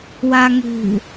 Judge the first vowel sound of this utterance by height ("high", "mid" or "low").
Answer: low